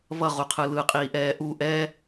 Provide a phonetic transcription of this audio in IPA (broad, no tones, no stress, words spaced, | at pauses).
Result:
βʌʁuqʰɯ lɯqʼiːʔɛː ʔu ʔɛ